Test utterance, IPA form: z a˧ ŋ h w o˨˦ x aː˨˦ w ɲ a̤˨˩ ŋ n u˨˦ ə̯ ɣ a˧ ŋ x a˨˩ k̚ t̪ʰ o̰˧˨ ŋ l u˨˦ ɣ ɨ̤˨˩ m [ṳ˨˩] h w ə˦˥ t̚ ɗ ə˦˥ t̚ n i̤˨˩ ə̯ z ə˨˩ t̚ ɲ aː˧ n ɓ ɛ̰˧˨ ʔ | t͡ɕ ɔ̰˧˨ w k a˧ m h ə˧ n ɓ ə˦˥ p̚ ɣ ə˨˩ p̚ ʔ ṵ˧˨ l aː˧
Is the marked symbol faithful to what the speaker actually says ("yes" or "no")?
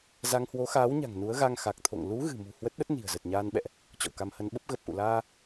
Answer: yes